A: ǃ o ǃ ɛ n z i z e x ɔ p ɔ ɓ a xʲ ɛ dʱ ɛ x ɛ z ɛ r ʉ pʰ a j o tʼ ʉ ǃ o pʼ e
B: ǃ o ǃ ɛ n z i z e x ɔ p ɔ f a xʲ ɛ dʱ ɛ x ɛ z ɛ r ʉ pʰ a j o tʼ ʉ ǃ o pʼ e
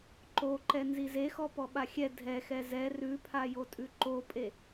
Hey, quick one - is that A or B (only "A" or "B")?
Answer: A